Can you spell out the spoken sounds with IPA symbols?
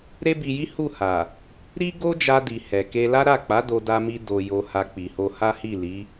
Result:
ɾ e˦ b i˧ j i˦ h u˦˨ h a˨ | ɾ i˦ ɡ o˦ d͡ʒ a˧ d i˨ h ɛ˨ k e˧ l a˦ ɾ a˦˨ k͡p a˨˦ d o˧ d a˧ m i˧ d o˨ j o˧ h a˧ k͡p i˨ h o˧ h a˦ h i˦˨ l i˨˦

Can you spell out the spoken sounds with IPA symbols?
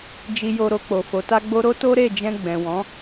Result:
d͡ʒ i˧ j o˧ ɾ o˧ k͡p o˨ f o˨˦ t a˦ ɡ͡b o˦ ɾ o˦ t o˦ ɾ e˦˨ d͡ʒ ɛ̃˧ ɡ͡b ɛ̃˨ w ɔ̃˨˦

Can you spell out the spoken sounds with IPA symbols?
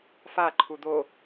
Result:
f a ǃʰ u d̪ o

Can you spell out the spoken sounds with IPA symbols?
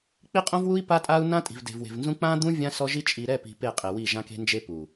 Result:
k͡p i˦ qʼ õ˦ v w u˦ i̯ p a˦ tʼ a˦ u̯ n ã˦ tʼ i̤˨ v d e̤˨ v w e̤˨ v n z ũ˦ k͡p ã˦ d̪ ũ˦ vʲ ã˦ s ɔ˦ ʒ i˦ t͡ʃʼ i˨ ɾ ɛ˦˨ p i̤˨ p e˦˨ qʼ e˨ w i˦˨ ʒ ã˦ k e̤˦ n d͡ʒ e˦ p u˨

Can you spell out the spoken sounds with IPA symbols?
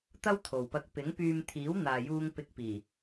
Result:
t̪ ɐ˥ w t̪ʰ o˨ w p ɐ˧ k̚ p ɪ˨˥ ŋ p yː˧ m t̪ʰ iː˨˥ w n̪ aː˨ j uː˧ ŋ p ɪ˧ k̚ p iː˨˩

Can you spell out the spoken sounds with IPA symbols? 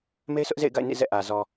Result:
m e˦ ɪ̯ s ʊ˦ ʔ z ḛ˦˨ ɪ̯ ɡ a̰˦˨ ɪ̯ n ḭ˦˨ z ɛ̰˦˨ ʔ ä˨ z ɔ˨

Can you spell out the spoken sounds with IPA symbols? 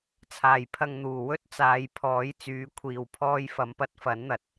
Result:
t͡sʰ aː˨˩ j pʰ ɐ˨ ŋ n̪ uː˨˩ w ɵ˥ t̚ t͡s aː˨˧ j pʰ ɔː˨˥ j t͡s yː˨˥ kʷʰ iː˨ w pʰ ɔː˧ j f ɐ˨˧ m p ɐ˧ t̚ f ɐ˨˥ n n̪ ɐ˨ t̚

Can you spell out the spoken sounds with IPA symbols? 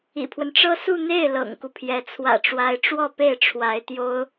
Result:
ḭ˨˩ pʰ w ə˦ n ʈ͡ʂ ɤ˥ s u˥˧ n̪ e˥˩ ɪ̯ l ɤ̰˨˩ ŋ k u˦ pʰ j ɛ˧˥ t͡sʰ w ä̰˨˩ ʈ͡ʂ w a˧˥ ɪ̯ ʈ͡ʂ w ɔ˥˧ p e˥˩ ɪ̯ ʈ͡ʂʰ w a˧˥ ɪ̯ t̪ j o˥ ʊ̯

